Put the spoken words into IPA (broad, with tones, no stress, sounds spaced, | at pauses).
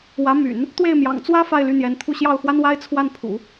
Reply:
w ä˧˥ m y̰˨˩˦ n | t̪ w e˥˩ ɪ̯ m j ɑ̰˨˩ ŋ t͡s w ä˥ f a˥˧ ɪ̯ l y˥˩ n̪ j ɛ˧˥ n t̪ʰ u˥˧ ɕ j ɑ˥˩ ʊ̯ x w a˥ n w a˥ ɪ̯ t͡sʰ w a˥˩ n pʰ ṵ˨˩˦